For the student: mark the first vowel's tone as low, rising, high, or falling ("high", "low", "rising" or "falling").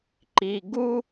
low